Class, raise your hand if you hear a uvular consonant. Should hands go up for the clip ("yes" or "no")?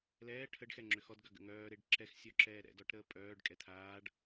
no